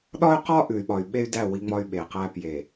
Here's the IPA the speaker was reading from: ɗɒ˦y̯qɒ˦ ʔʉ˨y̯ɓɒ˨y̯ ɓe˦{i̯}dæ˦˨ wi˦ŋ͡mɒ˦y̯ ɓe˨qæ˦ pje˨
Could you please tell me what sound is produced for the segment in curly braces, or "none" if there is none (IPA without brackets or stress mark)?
y̯